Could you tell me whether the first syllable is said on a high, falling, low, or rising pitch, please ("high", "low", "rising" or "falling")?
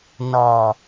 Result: low